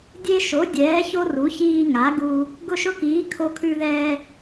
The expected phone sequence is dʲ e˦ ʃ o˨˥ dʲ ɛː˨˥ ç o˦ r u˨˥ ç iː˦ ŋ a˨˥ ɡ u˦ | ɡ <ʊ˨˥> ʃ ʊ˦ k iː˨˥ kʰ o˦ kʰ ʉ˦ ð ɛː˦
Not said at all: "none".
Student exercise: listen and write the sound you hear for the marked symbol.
ʊ˦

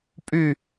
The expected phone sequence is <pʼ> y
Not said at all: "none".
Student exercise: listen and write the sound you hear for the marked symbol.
pʼ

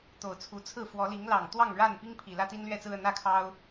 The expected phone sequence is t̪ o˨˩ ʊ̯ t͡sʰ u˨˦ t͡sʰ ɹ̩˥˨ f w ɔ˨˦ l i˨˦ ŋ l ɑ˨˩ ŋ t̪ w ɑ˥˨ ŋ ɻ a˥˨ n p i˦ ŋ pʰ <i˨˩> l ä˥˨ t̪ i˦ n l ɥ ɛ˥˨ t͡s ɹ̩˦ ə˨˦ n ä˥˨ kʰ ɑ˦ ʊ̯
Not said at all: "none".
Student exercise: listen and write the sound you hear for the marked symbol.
i˨˩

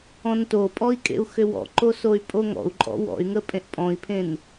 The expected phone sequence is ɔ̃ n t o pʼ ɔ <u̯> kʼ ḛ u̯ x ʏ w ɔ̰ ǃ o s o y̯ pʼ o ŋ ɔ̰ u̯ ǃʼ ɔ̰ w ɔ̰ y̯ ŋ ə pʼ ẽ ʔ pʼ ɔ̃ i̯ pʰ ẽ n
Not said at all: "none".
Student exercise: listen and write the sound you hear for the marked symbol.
i̯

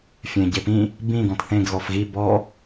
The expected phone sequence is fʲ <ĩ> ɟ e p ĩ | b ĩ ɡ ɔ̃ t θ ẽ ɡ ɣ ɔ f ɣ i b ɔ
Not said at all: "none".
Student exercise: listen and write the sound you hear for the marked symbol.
ẽ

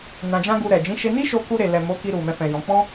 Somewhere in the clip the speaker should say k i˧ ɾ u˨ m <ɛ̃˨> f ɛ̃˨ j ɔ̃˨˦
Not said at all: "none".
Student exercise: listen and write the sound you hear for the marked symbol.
ɛ̃˧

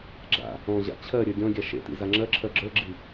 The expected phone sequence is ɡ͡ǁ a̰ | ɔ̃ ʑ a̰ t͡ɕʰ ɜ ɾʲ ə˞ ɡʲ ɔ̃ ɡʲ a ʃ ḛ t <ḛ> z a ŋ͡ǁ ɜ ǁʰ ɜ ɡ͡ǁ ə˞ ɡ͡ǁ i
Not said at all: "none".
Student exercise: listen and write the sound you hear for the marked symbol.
ḭ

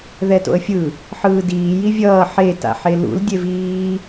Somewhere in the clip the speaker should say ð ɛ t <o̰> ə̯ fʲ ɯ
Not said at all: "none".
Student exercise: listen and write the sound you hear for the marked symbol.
o̰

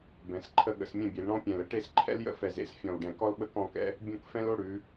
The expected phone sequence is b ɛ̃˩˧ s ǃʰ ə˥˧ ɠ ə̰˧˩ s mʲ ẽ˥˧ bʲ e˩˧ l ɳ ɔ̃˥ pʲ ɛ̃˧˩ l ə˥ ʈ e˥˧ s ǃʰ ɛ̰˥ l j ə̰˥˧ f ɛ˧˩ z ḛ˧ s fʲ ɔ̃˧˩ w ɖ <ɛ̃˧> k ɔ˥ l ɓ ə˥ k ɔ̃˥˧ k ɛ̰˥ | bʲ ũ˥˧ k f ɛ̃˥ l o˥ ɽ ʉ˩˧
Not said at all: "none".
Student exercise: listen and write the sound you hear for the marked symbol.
ɛ̃˧˩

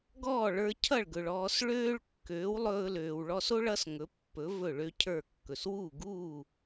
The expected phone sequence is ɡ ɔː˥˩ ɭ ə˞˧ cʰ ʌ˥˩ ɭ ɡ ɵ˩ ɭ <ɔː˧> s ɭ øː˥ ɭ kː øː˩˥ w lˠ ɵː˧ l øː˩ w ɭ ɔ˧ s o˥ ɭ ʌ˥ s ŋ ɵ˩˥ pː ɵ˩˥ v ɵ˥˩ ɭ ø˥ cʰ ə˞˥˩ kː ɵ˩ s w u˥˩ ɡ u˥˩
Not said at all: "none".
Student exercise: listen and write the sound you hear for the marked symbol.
ɔː˧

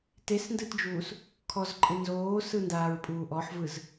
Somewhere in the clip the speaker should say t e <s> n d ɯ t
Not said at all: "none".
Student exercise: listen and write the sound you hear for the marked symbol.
s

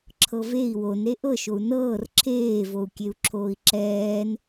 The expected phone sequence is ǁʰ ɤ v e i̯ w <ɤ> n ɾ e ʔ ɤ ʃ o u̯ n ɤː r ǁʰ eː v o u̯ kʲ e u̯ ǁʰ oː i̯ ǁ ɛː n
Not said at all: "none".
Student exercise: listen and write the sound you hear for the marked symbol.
o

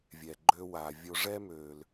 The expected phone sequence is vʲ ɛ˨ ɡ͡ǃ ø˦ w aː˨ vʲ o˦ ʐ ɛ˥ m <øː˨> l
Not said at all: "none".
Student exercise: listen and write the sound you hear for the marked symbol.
øː˨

